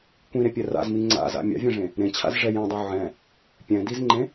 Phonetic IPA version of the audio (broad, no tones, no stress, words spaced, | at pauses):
kʷĩɾepʲɛ ra̰zmi ŋ͡ǀa̰za̰ mʲa̰vʲɛ̃ʐẽ | ɾẽt͡ɕʰa̰zʐɛ jẽdˤu ʕɛ̃ | pʲɛ̃dizŋ͡ǃẽ